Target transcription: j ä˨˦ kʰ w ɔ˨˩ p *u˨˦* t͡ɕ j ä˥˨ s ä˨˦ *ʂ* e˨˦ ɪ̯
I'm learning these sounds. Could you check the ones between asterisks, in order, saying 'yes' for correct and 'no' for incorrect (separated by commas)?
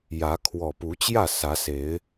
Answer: yes, no